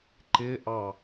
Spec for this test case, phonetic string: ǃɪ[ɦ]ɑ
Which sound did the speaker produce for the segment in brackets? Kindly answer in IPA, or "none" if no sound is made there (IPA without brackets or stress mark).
ʔ